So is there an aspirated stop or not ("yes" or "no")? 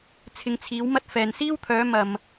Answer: yes